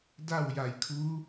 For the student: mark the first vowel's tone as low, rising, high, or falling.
falling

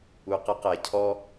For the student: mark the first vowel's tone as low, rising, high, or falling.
low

